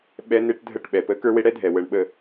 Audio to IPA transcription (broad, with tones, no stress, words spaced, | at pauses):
ɓɛ˦ne˦ʈ dʱə˦˨ʈɓɛ˨pə˦ kə˞˦we˦ɽɛ˦dʱɛ˨ wə˨ɳɓə˨